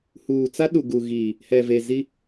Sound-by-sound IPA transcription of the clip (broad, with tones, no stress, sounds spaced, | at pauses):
h uː˨ t͡s a˦ ɗ u˨ ɡ u˨ ɣ iː˨ | h ɛ˨ v e˨ z i˦